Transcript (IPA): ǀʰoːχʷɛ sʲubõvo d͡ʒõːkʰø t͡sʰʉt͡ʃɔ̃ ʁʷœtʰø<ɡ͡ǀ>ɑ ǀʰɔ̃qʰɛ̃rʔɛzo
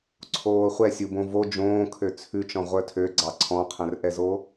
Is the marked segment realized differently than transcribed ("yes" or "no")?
no